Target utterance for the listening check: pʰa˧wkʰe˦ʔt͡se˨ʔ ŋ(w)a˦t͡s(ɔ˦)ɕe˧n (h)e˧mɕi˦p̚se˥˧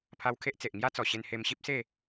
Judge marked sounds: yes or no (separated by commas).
no, no, yes